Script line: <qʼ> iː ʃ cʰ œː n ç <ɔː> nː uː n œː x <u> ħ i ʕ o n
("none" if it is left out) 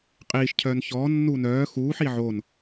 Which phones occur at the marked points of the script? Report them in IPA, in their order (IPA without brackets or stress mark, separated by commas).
qʼ, ɔː, uː